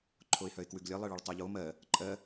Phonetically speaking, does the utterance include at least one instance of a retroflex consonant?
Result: yes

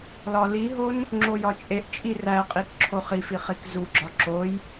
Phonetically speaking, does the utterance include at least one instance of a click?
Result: yes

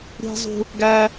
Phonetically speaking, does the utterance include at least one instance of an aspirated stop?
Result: no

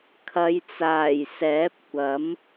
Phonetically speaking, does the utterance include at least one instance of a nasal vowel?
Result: no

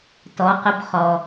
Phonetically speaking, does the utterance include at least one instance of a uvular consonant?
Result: yes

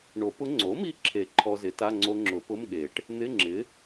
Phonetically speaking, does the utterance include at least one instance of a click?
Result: yes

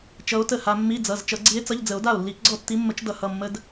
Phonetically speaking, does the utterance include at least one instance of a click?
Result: yes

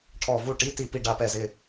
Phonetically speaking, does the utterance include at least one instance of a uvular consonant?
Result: no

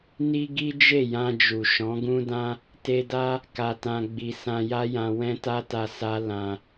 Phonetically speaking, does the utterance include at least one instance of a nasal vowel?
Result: yes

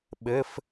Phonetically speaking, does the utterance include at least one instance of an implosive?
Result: yes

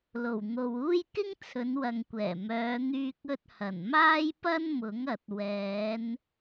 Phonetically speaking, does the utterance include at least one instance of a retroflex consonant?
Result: no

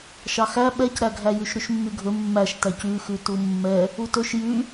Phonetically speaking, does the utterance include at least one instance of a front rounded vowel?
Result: yes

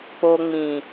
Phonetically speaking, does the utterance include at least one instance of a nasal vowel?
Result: yes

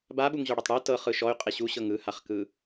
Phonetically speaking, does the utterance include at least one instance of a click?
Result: no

